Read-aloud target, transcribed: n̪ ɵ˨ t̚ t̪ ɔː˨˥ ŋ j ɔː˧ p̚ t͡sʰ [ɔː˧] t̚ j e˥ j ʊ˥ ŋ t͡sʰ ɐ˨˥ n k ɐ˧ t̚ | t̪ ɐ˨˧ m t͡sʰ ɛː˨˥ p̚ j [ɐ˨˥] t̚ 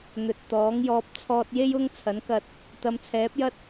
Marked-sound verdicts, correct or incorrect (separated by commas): correct, incorrect